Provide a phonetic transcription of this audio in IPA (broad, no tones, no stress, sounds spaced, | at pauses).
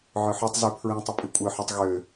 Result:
ʕ œ ħ œ tˤ z y pʰ ɹ ĩ tˤ ə pʼ i kʷʼ œ ħ œ tˤ ɣ ø